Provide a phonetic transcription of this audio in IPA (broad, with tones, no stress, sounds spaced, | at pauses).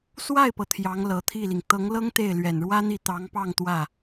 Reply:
s w a˥˩ ɪ̯ p ɤ˩ t̪ʰ j ɑ˧˥ ŋ l ɤ˨˩ t̪ʰ i˥˩ l i˩ ŋ t̪ ɤ˧˥ ŋ l ɤ˥ ŋ t̪ e˥˩ ɪ̯ l ɥ ɛ˨˩ n ɻ w ä˥ n̪ i˥˩ t̪ ɑ˧˥ ŋ p ɑ˥˧ ŋ t̪ w ä˥˩